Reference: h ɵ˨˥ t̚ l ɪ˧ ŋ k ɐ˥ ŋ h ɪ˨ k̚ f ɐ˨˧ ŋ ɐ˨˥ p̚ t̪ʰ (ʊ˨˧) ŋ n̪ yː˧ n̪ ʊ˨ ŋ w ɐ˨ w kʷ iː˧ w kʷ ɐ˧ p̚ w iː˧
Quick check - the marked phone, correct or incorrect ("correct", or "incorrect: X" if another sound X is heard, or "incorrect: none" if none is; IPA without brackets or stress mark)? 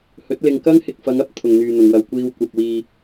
incorrect: ʊ˧